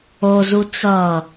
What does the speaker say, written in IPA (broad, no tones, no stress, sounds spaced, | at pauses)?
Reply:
o z u t͡s ʌ